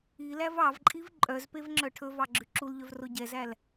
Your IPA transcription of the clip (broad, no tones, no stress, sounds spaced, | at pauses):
i l æ v ɑ v ǃʼ i v ǃʼ œ z p e v ŋ͡ǁ œ ʈʰ ɵ v ɑ ɡ͡ǁ ʉ ǁ u l ʎ œ v r o ɟ ɛ z æ l